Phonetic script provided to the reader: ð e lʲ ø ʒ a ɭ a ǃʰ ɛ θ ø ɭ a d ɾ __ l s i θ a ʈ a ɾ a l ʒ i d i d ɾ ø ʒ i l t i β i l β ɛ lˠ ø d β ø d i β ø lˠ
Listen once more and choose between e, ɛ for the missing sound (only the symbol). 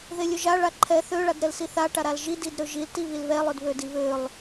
ɛ